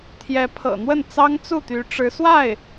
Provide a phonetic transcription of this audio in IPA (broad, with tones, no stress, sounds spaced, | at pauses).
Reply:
t̪ʰ j ɛ˧˥ pʰ ɤ̰˨˩ n̪ w ə˥˩ n t͡s ɑ˥ ŋ t͡s u˥˩ t̪ y˧˥ ʈ͡ʂ ɻ̩˧˥ s w a˥˩ ɪ̯